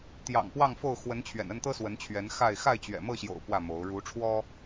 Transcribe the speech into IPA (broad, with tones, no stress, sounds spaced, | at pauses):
t̪ j ɑ̰˨˩ ŋ p w ɑ˥˨ ŋ f o˥˨ ʊ̯ x w ə˨˦ n t͡ɕʰ ɥ ɛ̰˨˩ n ə˥˨ n t̪ ɤ˦ s w ə˨˦ n t͡ɕʰ ɥ ɛ˨˦ n x a˥˨ ɪ̯ x a˥˨ ɪ̯ t͡ɕ ɥ ɛ̰˨˩ m ɤ˥˨ ɕ j o̰˨˩ ʊ̯ p w ä˥˨ m o˨˦ ʊ̯ ɻ u˨˦ ʈ͡ʂʰ w ɔ˦